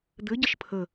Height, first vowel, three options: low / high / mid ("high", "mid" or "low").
mid